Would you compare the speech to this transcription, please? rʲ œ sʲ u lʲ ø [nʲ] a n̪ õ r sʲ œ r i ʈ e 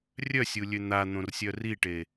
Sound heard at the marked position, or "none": n̪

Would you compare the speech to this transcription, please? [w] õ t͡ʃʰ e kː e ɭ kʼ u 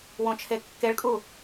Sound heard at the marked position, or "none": w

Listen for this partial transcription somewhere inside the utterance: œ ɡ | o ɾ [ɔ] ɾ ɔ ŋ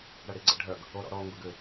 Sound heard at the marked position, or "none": ɔ̰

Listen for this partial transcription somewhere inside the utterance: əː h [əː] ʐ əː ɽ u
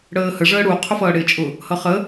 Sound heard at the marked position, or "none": ə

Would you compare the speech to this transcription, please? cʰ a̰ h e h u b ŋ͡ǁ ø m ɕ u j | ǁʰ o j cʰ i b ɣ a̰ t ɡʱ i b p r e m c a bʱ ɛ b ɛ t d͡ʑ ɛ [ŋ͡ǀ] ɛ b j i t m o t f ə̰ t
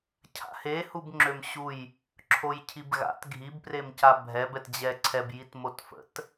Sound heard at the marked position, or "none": ǀʰ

